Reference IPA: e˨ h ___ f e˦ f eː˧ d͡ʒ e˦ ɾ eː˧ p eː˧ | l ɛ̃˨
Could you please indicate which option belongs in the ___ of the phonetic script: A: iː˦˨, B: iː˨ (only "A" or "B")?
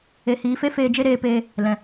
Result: B